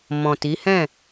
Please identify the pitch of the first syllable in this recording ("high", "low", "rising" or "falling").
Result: low